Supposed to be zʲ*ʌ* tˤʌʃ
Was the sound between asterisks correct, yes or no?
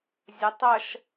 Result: yes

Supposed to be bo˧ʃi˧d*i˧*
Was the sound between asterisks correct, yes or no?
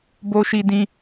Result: no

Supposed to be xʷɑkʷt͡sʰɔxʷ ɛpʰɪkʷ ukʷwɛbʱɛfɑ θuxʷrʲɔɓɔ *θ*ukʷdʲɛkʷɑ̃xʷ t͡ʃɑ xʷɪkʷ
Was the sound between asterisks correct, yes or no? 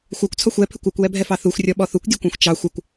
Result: yes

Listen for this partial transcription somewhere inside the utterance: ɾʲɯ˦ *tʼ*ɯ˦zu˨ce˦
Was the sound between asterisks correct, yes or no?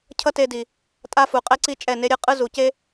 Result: no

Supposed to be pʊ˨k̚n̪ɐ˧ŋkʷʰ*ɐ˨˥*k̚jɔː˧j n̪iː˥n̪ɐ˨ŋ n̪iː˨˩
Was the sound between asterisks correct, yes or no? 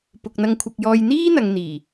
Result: no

